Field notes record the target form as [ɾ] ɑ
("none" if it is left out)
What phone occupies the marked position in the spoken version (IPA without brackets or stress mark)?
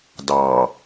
d